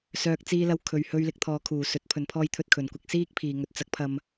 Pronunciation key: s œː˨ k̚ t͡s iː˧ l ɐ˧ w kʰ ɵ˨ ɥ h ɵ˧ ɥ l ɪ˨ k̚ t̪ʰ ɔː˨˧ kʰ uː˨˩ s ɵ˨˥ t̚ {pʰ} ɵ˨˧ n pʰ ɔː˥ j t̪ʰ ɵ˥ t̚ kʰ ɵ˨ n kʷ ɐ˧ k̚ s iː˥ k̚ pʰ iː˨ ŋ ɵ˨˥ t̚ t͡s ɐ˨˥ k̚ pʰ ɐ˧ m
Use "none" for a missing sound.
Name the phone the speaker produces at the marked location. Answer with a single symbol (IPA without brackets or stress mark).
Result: pʰ